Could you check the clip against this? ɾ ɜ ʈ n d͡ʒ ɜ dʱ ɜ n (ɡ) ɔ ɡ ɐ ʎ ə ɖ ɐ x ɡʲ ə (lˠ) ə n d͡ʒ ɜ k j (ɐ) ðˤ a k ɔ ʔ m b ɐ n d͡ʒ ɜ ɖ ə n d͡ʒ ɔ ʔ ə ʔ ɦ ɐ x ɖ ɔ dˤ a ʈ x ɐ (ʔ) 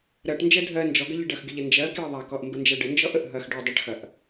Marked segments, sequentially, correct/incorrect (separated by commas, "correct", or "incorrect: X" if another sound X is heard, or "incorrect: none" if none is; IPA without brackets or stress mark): incorrect: d͡ʒ, incorrect: ʎ, incorrect: ə, correct